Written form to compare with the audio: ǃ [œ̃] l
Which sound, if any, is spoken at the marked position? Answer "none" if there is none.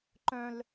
œ̃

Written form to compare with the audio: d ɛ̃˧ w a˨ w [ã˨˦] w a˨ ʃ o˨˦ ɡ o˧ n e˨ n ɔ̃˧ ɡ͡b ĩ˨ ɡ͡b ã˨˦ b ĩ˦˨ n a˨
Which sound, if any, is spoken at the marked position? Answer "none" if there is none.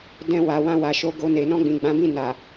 ã˧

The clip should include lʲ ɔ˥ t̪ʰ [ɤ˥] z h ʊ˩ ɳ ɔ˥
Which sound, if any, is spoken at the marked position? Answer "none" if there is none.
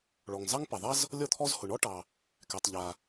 ɔ˥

